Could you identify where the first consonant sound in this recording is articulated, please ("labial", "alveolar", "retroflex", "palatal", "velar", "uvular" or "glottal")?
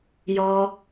palatal